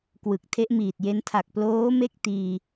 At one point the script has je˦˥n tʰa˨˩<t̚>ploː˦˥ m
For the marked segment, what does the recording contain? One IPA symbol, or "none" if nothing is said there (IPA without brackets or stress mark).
k̚